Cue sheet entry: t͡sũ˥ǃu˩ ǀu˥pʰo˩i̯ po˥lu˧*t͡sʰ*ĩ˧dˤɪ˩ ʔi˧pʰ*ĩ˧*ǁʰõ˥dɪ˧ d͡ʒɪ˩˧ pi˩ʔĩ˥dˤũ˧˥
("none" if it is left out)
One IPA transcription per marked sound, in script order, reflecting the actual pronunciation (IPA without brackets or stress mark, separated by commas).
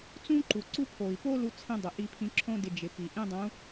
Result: t͡sʰ, ĩ˧